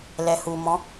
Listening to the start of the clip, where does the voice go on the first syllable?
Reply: low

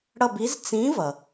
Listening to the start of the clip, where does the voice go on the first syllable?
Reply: falling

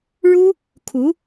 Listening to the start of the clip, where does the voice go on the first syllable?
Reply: high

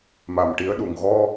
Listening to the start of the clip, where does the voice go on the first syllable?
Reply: low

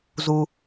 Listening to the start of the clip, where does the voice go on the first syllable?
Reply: high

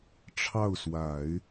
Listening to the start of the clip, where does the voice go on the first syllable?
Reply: falling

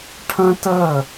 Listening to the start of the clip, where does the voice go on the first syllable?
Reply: high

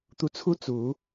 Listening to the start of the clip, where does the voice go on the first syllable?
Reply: rising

